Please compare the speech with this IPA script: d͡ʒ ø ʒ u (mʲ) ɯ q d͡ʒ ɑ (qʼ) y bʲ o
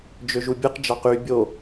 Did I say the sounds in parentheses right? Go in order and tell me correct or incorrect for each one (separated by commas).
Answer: incorrect, incorrect